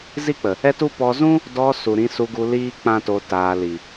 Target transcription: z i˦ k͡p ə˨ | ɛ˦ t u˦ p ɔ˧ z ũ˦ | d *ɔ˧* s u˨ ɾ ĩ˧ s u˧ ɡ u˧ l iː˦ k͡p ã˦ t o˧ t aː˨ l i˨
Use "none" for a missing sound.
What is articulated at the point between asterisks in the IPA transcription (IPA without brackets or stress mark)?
ɔ˧